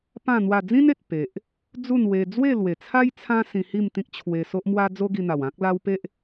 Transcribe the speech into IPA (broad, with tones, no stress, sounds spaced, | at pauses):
p ã˥˧ n̪ w a˥˧ d͡z ĩ˦ n e˨ t̚ p e˨ ʔ | d͡z u˥˧ n w e˧ d͡z w e˥˧ l w e˨˩ t͡sʰ a˦ j t͡sʰ ã˦ s ĩ˧ h i˥˧ m t̪ ĩ˦ k̚ t͡ɕʰ w e˧ s o˦ ʔ m w a˦ d͡z o˦ ɡ i˧ n̪ a˨˩ w ã˦ k̚ l a˧ w p e˦ ʔ